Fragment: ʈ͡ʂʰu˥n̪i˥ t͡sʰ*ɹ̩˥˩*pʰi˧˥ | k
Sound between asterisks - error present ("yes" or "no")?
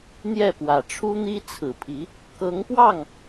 yes